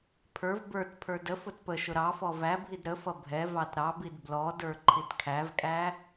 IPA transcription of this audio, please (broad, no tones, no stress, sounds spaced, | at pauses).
pʰ ə˞ v b ə˞ t pʰ ə˞ d ə f ʊ t p ə ʃ ʊ ɾ ɑ f ɔ v æ bʱ i d ɾ ə f ʌ bʱ ɛ v ɑ t ɾ ɑ b i d b l ɔ d ə˞ ǃʰ i t kʰ æ v kʼ æ